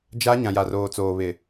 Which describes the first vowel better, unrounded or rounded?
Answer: unrounded